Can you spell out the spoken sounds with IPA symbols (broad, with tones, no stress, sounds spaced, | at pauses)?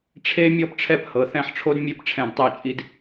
ʈ͡ʂʰ e˧ mʲ ɔ˧ p ʈ͡ʂʰ ɛ˧˩ p h ɤ˩˧ θ ɛ̃˧˩ ħ ʈ͡ʂʰ o˧ d mʲ e˧ p ʈ͡ʂʰ ɛ̃˧˩ d tˤ e˧˩ t͡ʃʼ i˧ d